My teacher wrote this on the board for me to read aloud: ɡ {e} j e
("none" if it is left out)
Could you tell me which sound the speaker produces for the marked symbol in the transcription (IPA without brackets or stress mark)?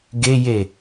e